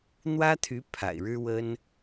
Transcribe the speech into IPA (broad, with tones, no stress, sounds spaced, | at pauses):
n̪ w ä˥ t̪ʰ y˧˥ pʰ a̰˨˩ ɪ̯ ɻ ɻ̩˥ w ə˥ n